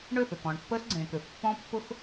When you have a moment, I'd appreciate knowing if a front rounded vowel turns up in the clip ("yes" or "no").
yes